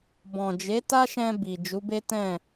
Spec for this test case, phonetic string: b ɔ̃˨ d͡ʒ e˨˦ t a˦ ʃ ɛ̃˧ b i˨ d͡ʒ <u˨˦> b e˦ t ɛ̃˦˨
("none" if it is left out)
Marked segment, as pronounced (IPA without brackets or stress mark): u˨˦